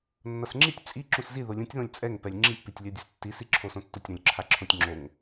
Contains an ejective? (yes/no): yes